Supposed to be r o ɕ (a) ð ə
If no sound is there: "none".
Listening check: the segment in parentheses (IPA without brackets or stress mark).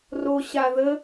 a